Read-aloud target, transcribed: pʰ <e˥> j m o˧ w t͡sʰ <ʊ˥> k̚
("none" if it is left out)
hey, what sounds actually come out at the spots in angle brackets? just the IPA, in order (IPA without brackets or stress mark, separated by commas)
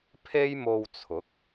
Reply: e˥, ʊ˨˥